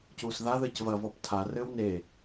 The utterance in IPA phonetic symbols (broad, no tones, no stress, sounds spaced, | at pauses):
c uː s ð a ð ɘː c v ɐ v ɔ p tʰ a r ɘː w n e